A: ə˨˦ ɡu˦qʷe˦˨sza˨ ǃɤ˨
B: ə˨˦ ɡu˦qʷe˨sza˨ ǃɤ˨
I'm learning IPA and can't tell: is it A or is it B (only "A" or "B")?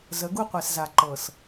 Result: B